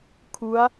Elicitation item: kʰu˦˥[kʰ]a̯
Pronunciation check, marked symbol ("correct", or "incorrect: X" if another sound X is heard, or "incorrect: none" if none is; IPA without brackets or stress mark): incorrect: none